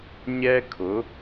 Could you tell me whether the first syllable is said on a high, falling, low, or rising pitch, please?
high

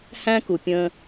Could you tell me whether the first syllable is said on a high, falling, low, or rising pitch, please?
high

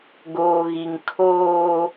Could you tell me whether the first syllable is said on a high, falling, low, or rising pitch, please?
low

